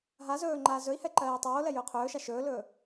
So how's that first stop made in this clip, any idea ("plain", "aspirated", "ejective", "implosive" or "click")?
click